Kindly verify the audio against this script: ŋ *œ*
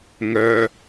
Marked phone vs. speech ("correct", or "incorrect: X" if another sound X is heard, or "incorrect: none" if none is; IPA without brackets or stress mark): correct